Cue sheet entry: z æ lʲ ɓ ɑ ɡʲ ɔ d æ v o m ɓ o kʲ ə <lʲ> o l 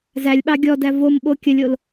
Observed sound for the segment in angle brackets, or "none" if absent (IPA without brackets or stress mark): lʲ